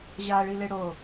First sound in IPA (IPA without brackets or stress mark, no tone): ʑ